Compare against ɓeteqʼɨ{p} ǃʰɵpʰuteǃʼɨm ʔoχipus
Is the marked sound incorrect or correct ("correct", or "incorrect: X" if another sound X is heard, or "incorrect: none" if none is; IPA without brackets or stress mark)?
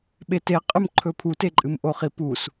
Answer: incorrect: m